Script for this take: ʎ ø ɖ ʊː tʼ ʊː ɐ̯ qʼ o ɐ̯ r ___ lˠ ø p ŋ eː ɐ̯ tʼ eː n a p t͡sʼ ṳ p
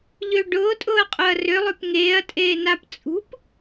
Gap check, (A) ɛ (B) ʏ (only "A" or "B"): B